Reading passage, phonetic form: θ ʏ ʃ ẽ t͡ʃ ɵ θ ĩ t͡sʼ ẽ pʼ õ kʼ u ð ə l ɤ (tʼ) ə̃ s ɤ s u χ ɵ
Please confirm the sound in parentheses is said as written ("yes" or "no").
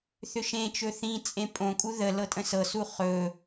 yes